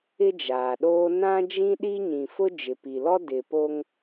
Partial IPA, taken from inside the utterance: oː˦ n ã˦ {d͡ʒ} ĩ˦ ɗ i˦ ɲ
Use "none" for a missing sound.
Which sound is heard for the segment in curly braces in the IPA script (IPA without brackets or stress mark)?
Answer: d͡ʒ